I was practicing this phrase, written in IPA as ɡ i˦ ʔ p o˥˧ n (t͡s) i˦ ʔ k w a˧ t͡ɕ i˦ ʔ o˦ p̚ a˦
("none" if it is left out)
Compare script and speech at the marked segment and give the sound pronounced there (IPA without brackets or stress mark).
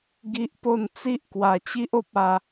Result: t͡s